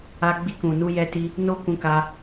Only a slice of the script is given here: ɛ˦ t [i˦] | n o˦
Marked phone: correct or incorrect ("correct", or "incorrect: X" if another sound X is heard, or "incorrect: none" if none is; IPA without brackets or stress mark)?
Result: correct